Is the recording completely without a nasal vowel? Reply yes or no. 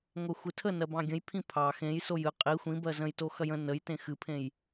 no